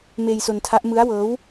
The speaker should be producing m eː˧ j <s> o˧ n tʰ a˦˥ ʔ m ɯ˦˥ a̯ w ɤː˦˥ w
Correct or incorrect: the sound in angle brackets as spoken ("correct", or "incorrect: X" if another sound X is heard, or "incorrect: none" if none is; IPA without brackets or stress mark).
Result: correct